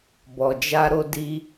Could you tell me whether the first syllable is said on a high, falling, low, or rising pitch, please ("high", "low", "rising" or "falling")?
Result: low